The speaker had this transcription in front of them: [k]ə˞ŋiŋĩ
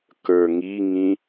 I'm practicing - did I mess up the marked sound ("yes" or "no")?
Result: no